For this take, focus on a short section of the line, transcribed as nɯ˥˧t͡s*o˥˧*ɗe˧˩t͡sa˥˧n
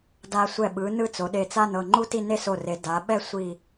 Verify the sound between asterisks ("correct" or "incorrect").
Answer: incorrect